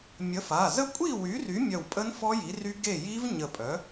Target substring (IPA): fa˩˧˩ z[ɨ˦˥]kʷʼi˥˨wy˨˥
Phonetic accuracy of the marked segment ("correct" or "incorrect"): incorrect